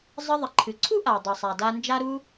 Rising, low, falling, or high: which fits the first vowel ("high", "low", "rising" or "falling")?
high